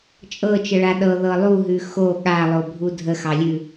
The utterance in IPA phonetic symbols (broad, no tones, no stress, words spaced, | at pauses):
t͡ʃʼɤt͡ʃəɭa ɗɤðɤ lˠuɦʉ xo ɠalˠobʱu dʱəxɑlʲʉ